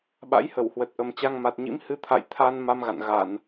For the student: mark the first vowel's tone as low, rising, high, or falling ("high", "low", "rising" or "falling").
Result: rising